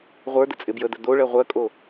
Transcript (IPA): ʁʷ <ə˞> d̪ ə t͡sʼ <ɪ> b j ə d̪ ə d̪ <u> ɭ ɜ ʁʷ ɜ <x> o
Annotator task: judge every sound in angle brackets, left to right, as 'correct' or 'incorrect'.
correct, correct, incorrect: o, incorrect: kʼ

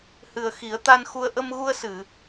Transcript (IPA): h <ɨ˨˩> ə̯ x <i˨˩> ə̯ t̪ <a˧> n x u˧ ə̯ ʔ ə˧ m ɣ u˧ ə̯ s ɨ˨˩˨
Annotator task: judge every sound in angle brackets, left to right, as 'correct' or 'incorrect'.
correct, incorrect: i˨˩˦, correct

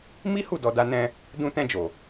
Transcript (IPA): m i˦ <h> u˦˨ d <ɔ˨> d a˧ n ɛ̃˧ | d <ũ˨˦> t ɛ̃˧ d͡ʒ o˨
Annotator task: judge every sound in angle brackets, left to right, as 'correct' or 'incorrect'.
correct, correct, incorrect: ũ˧

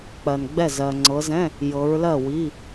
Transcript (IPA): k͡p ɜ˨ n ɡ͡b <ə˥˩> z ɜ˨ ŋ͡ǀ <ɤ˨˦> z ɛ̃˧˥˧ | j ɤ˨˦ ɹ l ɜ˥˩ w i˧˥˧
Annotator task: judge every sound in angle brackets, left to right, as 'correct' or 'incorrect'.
incorrect: ɛ˥˩, correct

